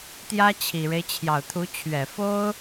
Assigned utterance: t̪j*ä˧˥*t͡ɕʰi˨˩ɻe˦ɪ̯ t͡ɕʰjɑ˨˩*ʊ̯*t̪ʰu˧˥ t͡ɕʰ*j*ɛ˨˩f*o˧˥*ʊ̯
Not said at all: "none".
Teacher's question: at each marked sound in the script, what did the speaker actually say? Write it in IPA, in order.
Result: ä˥, ʊ̯, ɥ, o˥

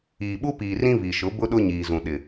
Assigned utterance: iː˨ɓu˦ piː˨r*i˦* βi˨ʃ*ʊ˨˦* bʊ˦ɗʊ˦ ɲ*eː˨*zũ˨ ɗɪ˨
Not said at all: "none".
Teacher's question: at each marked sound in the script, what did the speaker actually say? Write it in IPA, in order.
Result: ĩ˦, ʊ˨˦, iː˨

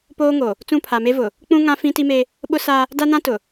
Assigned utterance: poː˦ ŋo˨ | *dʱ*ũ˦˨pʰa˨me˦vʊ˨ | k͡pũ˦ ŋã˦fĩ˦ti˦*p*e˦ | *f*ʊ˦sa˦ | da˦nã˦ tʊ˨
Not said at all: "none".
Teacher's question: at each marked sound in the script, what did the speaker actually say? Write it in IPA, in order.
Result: t͡s, m, ɓ

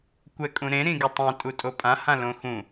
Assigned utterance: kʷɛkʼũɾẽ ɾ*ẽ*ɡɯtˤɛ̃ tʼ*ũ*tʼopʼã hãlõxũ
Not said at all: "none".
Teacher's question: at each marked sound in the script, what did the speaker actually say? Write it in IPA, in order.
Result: ĩ, u

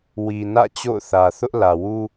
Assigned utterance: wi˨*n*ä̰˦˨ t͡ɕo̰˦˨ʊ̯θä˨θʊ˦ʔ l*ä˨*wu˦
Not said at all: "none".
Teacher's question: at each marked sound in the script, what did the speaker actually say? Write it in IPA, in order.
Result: n, ä˨

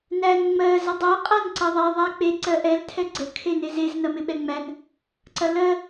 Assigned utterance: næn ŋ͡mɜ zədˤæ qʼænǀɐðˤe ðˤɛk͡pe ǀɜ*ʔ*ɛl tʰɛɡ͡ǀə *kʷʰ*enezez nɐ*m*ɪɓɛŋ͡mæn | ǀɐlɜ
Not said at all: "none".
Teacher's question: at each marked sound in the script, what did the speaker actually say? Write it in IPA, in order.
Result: ʔ, kʰ, m

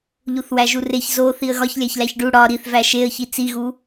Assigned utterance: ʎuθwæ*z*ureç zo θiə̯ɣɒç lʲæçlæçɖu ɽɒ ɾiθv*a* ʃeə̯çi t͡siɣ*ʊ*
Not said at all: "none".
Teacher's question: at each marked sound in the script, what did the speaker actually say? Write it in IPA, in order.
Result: ʒ, æ, u

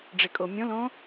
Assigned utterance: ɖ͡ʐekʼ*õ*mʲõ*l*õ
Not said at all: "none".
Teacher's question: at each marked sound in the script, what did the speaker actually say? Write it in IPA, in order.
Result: o, l

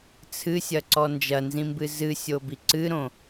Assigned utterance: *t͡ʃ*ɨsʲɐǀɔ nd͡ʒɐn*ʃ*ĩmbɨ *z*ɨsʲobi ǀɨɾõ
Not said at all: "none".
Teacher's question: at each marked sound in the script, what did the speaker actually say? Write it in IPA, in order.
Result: t͡sʰ, z, z

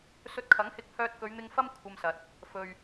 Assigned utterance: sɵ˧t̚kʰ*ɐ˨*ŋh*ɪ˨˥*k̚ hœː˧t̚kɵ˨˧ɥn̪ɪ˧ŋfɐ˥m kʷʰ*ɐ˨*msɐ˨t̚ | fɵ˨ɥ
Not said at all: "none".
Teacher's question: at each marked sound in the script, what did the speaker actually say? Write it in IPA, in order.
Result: ɐ˨˥, ɪ˧, ɐ˧

